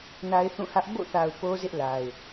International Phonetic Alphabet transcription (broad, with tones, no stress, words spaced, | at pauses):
na˦ɪ̯θũ˦˨hä˦ʔ bo̰˦˨θa˨ʊ̯ po˦zɪ˦ʔla˨ɪ̯